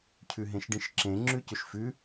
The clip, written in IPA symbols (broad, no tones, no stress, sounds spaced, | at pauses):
cʰ ʉ ɦ ẽ ʃ ɖ ĩ ʃ ǁ ẽ ŋ͡ǁ ʉ c ʏ ʃ f ʉ